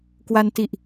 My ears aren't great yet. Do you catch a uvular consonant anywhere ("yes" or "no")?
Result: no